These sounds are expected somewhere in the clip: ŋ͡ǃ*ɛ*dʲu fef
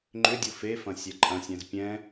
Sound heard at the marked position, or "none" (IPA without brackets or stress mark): ʏ